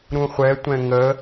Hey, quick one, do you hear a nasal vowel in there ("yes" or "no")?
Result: yes